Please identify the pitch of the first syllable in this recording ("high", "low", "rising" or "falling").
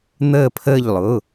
falling